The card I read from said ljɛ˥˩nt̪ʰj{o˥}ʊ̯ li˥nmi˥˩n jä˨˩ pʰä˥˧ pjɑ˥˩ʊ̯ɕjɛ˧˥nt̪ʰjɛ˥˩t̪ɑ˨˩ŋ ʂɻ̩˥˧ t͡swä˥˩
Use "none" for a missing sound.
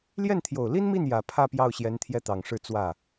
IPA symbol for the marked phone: o˨˩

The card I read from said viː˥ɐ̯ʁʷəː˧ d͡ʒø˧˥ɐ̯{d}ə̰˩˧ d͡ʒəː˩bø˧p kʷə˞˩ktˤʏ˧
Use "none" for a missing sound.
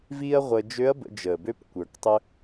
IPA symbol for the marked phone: b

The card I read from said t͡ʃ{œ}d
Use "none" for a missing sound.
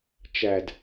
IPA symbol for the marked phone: æ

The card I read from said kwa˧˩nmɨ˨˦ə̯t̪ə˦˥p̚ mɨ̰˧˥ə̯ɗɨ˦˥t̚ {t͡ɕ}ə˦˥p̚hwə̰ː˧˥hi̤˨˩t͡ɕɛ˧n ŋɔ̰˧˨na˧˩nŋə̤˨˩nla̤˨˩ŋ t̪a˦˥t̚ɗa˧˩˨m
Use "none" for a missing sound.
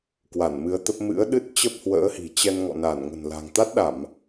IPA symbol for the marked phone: t͡ɕ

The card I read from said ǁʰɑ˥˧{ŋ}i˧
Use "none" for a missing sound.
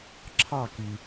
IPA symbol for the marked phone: k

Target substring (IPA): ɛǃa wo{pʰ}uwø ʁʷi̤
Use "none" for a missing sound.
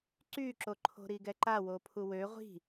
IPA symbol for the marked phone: pʰ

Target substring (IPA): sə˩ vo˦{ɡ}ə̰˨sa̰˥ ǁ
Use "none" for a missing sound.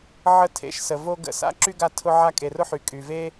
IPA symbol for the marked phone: ɡ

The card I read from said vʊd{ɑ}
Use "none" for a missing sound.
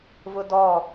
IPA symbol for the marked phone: ɔ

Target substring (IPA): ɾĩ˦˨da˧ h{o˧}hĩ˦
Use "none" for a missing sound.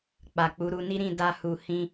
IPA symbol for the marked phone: u˧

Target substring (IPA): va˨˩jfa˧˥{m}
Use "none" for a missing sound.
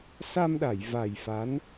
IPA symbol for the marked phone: n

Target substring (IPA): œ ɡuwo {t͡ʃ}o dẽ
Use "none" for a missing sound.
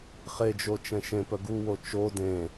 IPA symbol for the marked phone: t͡ʃ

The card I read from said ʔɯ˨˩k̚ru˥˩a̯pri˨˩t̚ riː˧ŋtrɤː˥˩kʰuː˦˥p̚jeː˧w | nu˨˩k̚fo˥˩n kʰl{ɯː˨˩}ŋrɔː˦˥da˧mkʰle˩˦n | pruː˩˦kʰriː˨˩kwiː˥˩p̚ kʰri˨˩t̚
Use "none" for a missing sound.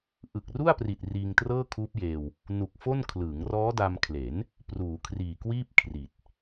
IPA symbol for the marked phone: ɯː˩˦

